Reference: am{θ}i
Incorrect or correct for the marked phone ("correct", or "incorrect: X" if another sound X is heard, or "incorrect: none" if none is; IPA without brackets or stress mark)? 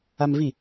incorrect: v